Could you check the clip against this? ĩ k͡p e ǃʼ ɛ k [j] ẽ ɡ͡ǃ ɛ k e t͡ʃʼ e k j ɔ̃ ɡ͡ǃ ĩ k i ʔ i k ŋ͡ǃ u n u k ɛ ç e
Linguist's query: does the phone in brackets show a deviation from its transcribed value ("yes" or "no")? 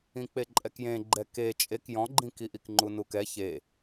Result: no